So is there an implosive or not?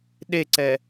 yes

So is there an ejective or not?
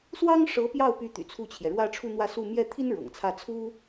no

